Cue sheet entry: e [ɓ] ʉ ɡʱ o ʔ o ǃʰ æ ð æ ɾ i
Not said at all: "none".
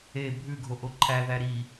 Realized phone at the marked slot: bʱ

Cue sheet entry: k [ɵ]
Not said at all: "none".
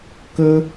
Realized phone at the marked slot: ɵ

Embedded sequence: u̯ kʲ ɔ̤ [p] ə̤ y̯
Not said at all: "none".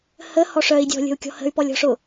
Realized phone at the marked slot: h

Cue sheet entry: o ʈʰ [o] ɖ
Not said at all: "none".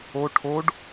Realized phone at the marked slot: o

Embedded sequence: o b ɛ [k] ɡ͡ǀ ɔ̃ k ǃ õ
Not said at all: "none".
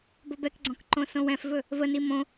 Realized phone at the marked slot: k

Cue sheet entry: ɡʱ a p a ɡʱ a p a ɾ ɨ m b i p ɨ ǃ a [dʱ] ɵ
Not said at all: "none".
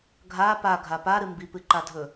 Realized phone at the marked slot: dʱ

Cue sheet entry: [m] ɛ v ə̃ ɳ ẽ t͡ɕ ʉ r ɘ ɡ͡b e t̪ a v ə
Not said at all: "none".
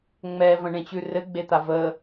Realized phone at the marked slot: ŋ͡m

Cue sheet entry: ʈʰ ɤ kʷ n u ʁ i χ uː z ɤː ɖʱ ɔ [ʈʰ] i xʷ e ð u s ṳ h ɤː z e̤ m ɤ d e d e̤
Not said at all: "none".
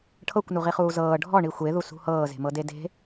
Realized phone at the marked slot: ɳ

